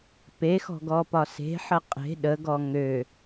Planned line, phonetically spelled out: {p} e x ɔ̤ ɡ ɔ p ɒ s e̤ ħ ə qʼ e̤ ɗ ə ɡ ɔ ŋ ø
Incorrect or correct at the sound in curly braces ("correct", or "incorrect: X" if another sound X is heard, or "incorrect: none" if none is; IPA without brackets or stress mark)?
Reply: correct